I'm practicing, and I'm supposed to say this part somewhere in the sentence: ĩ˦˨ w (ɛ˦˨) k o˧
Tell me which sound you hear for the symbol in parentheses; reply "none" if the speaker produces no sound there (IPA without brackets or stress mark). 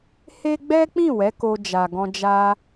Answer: ɛ˨˦